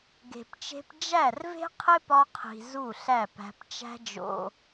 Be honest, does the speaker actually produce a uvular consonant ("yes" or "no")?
yes